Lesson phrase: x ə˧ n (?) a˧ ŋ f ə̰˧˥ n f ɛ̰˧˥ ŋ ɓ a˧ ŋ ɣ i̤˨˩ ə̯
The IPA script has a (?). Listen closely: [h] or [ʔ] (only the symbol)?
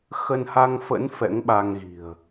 h